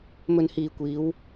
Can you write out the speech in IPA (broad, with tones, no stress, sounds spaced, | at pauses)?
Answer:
m ɵ˨ n h iː˨ kʷ iː˨˧ w